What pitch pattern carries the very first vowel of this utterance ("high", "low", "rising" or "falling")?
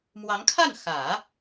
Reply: rising